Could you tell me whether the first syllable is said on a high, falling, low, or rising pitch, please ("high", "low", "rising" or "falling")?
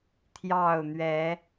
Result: falling